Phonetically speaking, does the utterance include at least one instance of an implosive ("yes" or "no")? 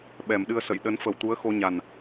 yes